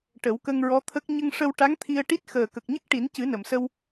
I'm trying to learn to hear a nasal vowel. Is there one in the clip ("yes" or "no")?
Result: no